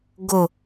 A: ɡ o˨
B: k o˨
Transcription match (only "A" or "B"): A